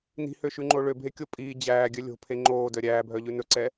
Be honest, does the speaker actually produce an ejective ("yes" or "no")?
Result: yes